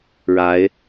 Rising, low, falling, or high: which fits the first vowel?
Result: rising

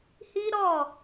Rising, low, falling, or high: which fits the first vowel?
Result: high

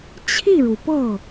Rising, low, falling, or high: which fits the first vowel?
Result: falling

